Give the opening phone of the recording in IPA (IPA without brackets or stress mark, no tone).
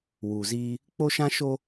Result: w